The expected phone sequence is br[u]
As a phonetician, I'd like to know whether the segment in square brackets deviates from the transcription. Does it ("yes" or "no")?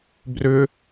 yes